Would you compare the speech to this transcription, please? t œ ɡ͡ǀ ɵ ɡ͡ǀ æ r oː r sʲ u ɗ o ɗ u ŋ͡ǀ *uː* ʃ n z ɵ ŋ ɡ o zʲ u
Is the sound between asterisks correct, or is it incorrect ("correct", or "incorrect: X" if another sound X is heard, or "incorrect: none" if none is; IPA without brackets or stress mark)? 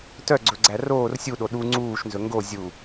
correct